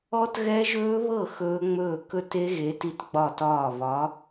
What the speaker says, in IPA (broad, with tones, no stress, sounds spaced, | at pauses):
ɔ˦˥ t ɣ ɛ˦˥ ʒ ɵː˦˥ β ɤ˥˩ x ɵː˦˥ ŋ͡m ɵː˥˩ k ɵ˥˩ t e˦˥ ɣ e˨˥ t i˦˥ t ɡ͡b ɒ˥˩ t ɒː˥˩ β ɒ˨˥